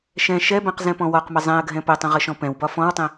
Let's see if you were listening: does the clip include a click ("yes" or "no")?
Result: no